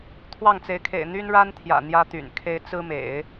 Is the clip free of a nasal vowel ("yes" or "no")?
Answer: yes